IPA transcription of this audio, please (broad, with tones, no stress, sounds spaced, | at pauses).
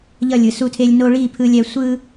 ʎ ʌ˦˨ lʲ ɯ˨ s u˦˨ tʰ e˦ lʲ n o˦ ɭ i˦˨ pʰ ɯ˦ lʲ ɛ˦ sʷ ɯ˦